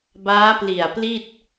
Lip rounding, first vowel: unrounded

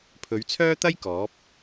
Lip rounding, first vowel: rounded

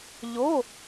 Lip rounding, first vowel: rounded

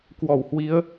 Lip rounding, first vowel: rounded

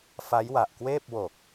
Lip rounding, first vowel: unrounded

